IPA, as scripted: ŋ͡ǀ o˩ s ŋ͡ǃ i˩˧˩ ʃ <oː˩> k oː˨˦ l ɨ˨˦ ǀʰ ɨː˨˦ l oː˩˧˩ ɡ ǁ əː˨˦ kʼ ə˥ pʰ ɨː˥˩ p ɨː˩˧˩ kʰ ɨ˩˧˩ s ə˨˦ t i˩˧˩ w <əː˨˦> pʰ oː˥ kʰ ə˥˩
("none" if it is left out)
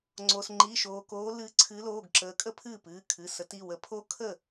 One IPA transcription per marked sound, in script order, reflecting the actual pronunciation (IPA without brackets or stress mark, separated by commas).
oː˩, ə˨˦